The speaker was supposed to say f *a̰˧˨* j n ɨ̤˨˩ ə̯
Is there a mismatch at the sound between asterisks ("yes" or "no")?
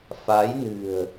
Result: yes